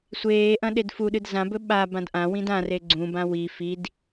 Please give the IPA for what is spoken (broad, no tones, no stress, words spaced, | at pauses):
sʷeːʔɐ̃ ɗedfuɗɨd zãbɵ ɓa bãdʔãwĩd ãre ɡ͡ǀũbã wi fid